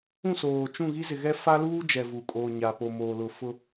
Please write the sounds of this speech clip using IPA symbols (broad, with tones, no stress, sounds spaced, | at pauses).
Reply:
ũ˦˨ s oː˨ t͡ʃ ũ˦˨ ɣ i˦ z ɪ˨ ɣ ɛ˦ f a˦ l uː˦ d͡ʒ ɛ˨ v u˨ kʼ oː˨ ɲ a˨ p o˨ m oː˨ l ʊ˨ f ʊ˦